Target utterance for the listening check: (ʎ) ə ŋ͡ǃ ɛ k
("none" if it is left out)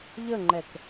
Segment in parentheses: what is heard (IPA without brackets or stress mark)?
ʎ